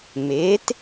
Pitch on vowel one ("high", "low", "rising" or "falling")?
rising